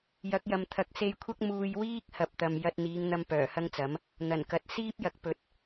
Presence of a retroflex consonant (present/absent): absent